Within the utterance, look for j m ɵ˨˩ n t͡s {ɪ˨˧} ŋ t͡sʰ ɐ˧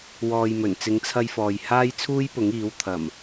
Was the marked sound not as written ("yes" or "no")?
no